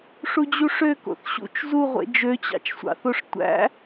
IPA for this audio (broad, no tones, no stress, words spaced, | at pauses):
ʂud͡ʑuʂø ko̰θɕṵt͡ʃ zuʁʷḛ d͡ʒøt͡ɕɑ̰t͡ʃsʷɑ̰θoʂ tʷæ̰